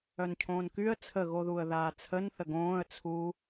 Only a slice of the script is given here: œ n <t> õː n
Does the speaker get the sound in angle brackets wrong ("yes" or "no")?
yes